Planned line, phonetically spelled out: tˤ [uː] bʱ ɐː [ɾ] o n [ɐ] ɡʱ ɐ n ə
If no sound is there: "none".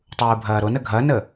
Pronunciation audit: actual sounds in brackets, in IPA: uː, ɾ, ə

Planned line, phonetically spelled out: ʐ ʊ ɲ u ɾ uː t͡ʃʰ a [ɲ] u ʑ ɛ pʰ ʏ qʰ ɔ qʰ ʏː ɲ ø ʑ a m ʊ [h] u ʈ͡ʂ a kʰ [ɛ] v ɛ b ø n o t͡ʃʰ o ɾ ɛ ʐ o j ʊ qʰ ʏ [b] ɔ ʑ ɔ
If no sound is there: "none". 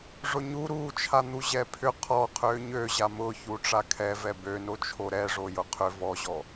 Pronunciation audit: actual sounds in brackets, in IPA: n̪, ç, ɛ, v

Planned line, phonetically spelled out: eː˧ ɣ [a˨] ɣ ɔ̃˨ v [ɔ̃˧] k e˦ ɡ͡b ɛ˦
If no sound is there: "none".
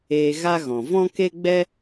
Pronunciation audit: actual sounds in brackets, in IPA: a˦, ɔ̃˦

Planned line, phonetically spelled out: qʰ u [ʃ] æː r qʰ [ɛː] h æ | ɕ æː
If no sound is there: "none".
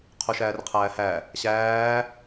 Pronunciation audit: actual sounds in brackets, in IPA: ʃ, æː

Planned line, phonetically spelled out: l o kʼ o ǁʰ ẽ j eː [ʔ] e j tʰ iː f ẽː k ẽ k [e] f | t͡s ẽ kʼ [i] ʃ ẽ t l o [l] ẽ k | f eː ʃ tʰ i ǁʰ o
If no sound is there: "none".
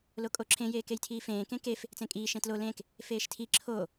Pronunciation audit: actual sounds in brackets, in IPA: k, e, iː, l

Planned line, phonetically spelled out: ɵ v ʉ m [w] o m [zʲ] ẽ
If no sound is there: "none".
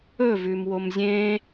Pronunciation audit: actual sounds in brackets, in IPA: w, zʲ

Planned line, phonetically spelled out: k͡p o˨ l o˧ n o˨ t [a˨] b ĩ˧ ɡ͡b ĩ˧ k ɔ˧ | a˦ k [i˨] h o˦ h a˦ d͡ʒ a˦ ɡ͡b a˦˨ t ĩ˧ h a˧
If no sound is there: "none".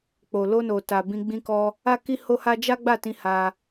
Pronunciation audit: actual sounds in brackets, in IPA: a˨, i˦

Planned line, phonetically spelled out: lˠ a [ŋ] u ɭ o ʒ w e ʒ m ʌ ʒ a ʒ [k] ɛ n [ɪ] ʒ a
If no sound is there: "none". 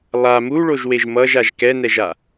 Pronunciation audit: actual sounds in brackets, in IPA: m, k, ɛ

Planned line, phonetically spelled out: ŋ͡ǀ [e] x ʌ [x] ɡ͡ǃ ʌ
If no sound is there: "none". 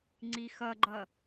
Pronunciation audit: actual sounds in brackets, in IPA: i, none

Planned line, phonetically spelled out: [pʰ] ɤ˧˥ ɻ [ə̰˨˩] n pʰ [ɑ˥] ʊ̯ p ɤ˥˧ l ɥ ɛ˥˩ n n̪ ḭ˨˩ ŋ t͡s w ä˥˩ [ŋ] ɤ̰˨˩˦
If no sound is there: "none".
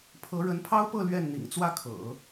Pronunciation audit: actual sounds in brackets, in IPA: pʰ, ə˧˥, ɑ˥, kʰ

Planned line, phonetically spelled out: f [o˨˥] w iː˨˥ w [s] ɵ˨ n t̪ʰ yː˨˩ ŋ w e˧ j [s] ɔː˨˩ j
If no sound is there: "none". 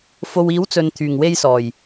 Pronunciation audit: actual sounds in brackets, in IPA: o˨, t͡s, s

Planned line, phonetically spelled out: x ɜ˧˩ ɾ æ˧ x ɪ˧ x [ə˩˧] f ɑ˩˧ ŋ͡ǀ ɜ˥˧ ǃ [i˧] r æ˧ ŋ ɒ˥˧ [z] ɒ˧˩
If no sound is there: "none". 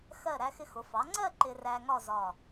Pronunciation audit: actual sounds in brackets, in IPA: ʊ˩˧, ɪ˧, z

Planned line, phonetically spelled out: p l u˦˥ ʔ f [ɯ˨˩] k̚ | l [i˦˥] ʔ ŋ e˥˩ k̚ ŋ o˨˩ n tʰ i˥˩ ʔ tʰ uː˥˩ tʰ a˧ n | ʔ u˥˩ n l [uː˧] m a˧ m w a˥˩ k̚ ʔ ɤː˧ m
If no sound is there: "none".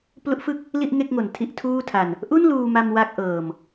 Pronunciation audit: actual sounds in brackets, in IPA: ɯ˥˩, i˥˩, uː˧

